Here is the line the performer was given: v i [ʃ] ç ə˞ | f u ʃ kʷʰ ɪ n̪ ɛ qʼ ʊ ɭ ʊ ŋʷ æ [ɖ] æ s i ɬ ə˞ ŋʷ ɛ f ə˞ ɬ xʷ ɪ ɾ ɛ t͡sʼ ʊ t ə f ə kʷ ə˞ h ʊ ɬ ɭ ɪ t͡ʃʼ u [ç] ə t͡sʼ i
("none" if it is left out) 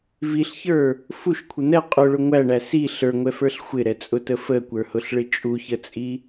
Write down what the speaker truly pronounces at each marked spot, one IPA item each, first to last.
ɬ, ɳ, ç

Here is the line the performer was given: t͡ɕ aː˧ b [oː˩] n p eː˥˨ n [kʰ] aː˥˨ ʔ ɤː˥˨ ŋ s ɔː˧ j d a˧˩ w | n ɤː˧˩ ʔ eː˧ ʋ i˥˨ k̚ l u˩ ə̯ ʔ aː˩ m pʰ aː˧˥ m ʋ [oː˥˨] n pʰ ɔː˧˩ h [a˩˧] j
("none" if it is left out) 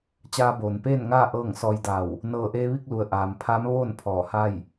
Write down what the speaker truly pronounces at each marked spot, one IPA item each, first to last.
oː˩, ŋ, oː˥˨, a˥˨

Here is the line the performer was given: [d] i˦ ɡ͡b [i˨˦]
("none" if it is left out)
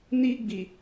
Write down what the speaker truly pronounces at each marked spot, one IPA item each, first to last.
n, i˨

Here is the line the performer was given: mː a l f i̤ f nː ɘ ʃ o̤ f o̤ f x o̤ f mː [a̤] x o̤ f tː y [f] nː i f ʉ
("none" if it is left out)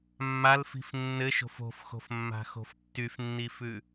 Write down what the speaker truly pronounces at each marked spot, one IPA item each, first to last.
a̤, f

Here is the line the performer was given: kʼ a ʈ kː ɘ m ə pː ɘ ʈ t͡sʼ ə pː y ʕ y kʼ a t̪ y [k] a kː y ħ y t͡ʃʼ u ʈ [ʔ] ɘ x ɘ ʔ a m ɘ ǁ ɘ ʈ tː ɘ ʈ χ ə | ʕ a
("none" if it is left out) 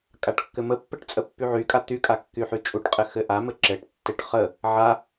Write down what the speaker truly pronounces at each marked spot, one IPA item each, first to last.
kʼ, qʼ

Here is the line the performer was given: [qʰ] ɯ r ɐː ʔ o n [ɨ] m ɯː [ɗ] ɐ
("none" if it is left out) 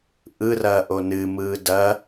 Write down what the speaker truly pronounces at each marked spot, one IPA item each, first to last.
ʔ, ɨ, d

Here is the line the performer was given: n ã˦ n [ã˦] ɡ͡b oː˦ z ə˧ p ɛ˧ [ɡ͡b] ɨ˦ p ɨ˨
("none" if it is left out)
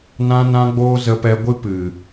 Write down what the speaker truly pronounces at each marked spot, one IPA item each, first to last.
ã˦, ɡʷ

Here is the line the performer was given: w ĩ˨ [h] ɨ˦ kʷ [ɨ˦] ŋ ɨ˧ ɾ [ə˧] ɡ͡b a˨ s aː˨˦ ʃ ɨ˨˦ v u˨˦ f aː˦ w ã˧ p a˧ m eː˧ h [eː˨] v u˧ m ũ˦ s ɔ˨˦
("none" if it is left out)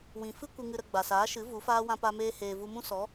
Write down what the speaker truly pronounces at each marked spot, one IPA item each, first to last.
f, ɨ˧, ə˧, eː˨

